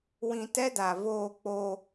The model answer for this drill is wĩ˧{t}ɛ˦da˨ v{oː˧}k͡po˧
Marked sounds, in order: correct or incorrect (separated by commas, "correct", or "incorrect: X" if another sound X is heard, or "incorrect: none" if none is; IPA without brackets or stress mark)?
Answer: correct, correct